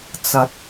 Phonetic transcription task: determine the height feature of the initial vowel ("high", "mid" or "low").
low